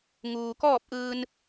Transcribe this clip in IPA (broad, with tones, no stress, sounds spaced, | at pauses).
ŋ uː˩ k ɔː˥˨ p̚ ʔ ɯː˧ n